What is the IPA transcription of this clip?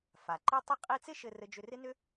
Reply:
f a˩ ǃ i˥ tˤ i˥ qʼ i˥ t͡s ɪ˥ ʃ ɘ˧ r ɘ˧ d͡ʒ ʏ˧ r ɪ˥ n ʏ˥

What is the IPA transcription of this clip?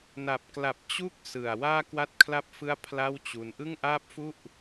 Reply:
n a˨˩ p̚ k l a˨˩ p̚ t͡ɕ u˦˥ k̚ s ɯ˨˩ a̯ w aː˥˩ k w a˥˩ t̚ kʰ l a˥˩ p̚ f ɯ˥˩ a̯ pʰ l a˥˩ w t͡ɕ u˧ n ʔ ɯ˥˩ ŋ ʔ aː˥˩ p̚ f u˥˩ ʔ

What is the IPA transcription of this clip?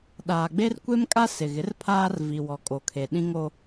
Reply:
ɗ aː˨ ɡ͡b e˦ r kʷ e˦ m kʼ a˦ s ɪ˨ ɣ ɪ˨˦ r pʰ aː˦ r v i˨ w ɔ˨ kʼ o˨ kʰ e˨ ɗ ĩ˦ ŋ o˦

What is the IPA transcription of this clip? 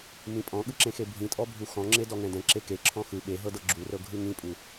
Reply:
m ĩ pʼ ɔ̃ ɠ ɯ ǁ ẽ x e bʱ ĩ tʼ ɔ bʱ u x ɔ̃ ŋ͡ǁ e d ɔ ŋ ɛ̃ d ɛ̃ ǁ e k e ǁʰ ɔ̃ x ɯ ɓ e ɦ ɤ d ɤ ɡ͡ǁ u r ɤ ɡʱ ɯ ŋ ĩ pʼ u

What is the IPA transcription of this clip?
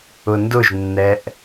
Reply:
ʊ n d ʊ ʒ nː ɛ ʔ

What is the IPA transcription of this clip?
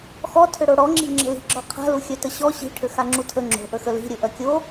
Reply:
x ɔ tʰ ʏ ɽ o ɽ ɔ ŋ͡ǁ i̤ ŋ͡ǁ ə̤ l i̤ ɡ͡ǁ ɔ qʰ a̤ l u xʲ œ t ə ɕ ɔ ɕ i̤ ʈʰ ʏ x a ŋ͡ǁ u tʰ ə ŋ͡ǁ o̤ ʔ ə x ə l i̤ ɾʲ ɵ ʔ œ kʲ o

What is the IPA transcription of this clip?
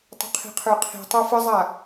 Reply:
tˤ ə̤ qʰ i̤ qʰ ə˞ qʰ i̤ tˤ ə˞ f ə zˤ a

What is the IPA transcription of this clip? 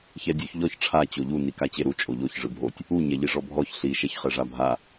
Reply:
ç ɛ dʲ u ç ʎ ɔ ç ʈ͡ʂʰ a t͡ɕ o ʎ u n i k a t͡ɕ e ɾ u t͡ʃʼ o ʎ o ç ʐ ɯ bʱ o tʲ | u ɲ ɛ ʎ i ʐ ɔ bʱ ɔ ç ɬ i ʃ ɛ ç χ ɛ ʐ a bʱ a

